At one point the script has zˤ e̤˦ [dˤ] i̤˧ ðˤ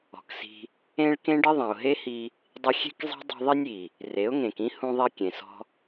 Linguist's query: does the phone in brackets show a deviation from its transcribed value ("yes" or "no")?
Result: no